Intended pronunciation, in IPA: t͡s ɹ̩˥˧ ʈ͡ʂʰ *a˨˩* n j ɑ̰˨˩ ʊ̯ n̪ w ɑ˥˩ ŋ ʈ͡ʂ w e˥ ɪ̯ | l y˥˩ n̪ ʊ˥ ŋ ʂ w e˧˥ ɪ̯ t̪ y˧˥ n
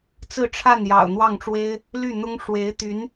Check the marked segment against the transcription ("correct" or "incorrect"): incorrect